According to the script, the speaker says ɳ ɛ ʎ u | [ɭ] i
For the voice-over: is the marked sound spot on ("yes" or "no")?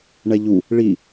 yes